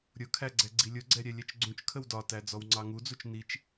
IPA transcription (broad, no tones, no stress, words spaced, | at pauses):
ɾʲʊkʰæɡ͡ǀɛ ɡ͡ǀilʲʊɡ͡ǀɛ ɾʲɛlʲɛt͡ʃɡ͡ǀũt͡ʃ kʰəwdɒtæ d͡zɔwŋ͡ǀɑŋud͡zut͡ʃ nit͡ʃ